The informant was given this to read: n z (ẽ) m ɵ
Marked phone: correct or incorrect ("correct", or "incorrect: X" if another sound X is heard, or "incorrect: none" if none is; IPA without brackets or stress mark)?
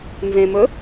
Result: correct